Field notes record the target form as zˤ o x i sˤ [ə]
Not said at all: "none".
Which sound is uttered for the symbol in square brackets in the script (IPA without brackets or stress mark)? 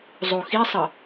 ə